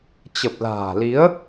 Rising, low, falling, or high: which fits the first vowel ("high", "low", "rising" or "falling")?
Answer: low